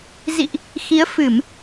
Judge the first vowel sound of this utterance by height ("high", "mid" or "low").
high